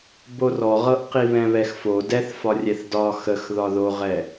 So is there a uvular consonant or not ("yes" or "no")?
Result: yes